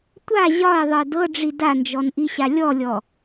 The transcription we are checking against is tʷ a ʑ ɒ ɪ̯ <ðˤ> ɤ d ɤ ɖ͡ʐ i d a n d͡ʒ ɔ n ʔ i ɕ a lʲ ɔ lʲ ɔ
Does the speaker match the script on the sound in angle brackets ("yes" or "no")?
yes